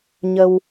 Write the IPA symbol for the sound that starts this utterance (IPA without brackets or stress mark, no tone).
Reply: ɲ